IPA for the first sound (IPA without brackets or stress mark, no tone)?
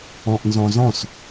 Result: ɔ̃